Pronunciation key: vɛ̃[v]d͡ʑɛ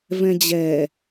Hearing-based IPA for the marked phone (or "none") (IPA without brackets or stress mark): none